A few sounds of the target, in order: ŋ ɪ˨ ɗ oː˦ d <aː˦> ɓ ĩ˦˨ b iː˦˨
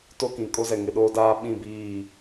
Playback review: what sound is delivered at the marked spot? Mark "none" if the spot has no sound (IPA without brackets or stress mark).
aː˦